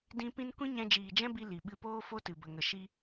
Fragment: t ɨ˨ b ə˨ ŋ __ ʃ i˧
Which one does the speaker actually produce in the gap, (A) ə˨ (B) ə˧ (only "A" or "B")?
A